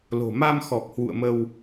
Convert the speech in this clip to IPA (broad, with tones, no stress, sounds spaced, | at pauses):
l o̤˨˩ m a˧ m x ɔ˨˩ k̚ h w ṵ˧˨ ə̯ m ə˧ w